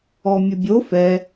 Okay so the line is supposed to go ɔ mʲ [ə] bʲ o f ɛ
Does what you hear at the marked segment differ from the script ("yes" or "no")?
no